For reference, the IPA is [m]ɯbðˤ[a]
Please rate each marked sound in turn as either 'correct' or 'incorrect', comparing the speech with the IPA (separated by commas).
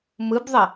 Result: correct, incorrect